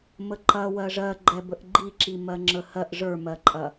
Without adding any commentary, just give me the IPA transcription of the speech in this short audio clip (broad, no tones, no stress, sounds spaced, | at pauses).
m ə ǃ ɐ w ɜ ʐ ɜ ɡ͡ǃ ɛ b ə ʔ ɡ͡ǃ i ǁ i m ɜ ŋ͡ǁ ə h ɜ ʔ ʐ ə˞ m ɜ ǃʼ ɐ